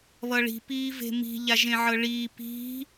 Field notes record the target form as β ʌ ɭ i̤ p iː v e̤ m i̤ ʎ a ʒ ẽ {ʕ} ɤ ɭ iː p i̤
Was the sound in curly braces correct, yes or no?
yes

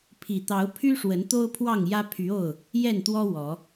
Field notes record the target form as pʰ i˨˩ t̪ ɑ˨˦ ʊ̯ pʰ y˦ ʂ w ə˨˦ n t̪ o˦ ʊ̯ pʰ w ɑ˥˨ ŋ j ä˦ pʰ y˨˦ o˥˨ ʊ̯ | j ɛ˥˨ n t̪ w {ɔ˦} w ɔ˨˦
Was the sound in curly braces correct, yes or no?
yes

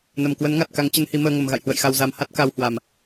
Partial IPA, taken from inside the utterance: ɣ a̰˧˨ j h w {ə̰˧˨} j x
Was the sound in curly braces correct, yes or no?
yes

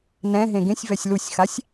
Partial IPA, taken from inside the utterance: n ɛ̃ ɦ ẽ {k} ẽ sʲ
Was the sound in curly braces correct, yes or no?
no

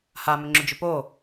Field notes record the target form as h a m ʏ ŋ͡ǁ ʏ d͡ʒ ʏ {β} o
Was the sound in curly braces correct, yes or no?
no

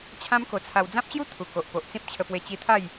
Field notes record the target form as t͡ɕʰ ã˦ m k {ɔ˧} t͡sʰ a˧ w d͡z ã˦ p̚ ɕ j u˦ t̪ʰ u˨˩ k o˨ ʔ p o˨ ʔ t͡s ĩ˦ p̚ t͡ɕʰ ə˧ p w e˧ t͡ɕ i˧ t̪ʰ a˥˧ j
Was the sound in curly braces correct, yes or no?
no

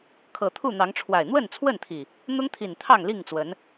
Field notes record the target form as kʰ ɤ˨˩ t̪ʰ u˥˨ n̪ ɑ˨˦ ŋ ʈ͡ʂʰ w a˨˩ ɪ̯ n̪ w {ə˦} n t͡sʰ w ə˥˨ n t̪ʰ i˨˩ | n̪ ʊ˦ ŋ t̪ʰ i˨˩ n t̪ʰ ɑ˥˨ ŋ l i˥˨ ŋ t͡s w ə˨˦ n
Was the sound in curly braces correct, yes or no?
no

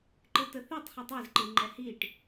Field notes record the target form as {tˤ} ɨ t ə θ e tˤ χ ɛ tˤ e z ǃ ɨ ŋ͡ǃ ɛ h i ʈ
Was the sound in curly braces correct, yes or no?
no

